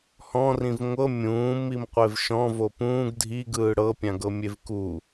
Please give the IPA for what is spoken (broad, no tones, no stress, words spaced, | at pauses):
hɔ̃rĩv ŋʷɤ mʲũːmim qʷevʃɔ̃ vopũːɡ dʱi ɡɯːɽɤpʲãɡɤ mʲevku